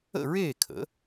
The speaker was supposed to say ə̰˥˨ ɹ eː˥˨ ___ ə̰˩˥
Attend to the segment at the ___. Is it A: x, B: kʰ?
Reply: B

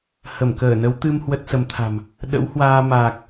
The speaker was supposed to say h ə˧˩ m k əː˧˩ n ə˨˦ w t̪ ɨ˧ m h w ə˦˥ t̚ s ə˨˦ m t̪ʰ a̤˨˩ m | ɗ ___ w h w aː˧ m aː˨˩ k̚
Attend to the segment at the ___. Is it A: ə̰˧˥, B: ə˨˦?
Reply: A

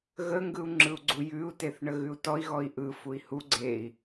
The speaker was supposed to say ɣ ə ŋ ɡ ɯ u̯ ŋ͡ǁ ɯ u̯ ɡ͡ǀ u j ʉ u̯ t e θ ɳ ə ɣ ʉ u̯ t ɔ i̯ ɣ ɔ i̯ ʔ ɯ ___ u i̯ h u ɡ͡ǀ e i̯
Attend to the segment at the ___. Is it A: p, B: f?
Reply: B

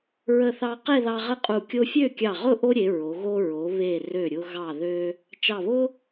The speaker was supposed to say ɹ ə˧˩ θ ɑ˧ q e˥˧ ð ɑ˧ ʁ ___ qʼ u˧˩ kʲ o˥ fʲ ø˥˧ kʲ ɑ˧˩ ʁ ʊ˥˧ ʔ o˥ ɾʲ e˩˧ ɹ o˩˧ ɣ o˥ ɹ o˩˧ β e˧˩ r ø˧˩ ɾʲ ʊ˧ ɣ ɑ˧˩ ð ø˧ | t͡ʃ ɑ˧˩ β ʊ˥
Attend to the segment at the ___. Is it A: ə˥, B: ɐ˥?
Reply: A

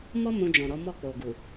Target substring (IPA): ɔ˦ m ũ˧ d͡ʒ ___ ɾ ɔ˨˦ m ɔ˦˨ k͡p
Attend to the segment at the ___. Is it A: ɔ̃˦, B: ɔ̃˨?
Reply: B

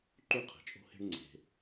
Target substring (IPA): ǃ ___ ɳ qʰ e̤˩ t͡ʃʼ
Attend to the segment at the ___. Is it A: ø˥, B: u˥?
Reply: B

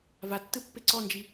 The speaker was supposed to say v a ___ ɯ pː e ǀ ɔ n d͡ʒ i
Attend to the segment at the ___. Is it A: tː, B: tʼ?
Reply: A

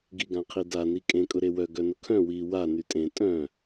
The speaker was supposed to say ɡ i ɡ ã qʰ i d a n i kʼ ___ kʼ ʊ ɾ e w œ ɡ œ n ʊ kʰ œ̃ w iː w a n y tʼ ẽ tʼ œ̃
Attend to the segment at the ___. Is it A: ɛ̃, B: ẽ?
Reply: B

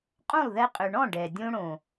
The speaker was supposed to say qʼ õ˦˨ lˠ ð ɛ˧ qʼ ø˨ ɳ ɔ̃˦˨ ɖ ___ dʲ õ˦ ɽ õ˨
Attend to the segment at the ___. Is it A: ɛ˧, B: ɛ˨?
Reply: B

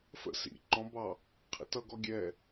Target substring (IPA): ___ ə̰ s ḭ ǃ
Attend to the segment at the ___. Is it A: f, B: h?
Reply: A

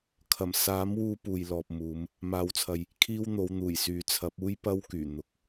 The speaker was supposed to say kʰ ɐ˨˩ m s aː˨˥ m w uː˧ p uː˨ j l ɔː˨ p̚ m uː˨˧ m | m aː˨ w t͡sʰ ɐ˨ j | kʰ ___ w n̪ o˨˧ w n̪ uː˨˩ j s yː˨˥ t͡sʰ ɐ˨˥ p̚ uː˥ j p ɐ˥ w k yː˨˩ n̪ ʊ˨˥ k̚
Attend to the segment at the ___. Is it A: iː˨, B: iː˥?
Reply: B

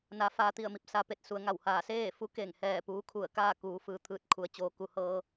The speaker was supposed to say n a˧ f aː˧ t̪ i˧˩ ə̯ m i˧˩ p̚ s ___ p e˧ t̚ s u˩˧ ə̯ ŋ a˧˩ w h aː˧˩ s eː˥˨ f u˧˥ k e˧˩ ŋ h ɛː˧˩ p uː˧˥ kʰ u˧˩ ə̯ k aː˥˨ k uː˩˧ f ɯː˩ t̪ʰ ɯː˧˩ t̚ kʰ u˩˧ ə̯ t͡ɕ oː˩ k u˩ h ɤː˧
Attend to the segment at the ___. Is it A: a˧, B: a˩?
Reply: A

